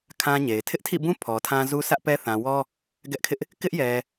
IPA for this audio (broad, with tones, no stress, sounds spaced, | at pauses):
kʰ ã˦ ɲ e˨ ɪ̯ tʰ ɪ˦ ʔ tʰ ḭ˦˨ b ũ˦ pʰ ɔ˨ tʰ ã˦ z u˦ sʰ ä˦ ʔ p ɛ˦ θ ã˨ w ɔ˦ | ɡ ɛ˦ ʔ kʰ ɪ˦ ʔ | k ɪ˦ ʔ j ɛ˨